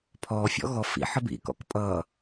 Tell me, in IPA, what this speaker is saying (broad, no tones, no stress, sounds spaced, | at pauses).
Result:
pʰ ɔ fʲ ɔ̰ ɣ ɔ f ḭ ħ ə b ḭ k ɔ̰ k pʼ ʌː